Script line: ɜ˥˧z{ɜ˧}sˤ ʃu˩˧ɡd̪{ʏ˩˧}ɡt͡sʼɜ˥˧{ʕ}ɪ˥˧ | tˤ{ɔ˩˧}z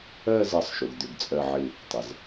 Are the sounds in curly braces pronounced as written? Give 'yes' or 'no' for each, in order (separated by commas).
yes, yes, yes, no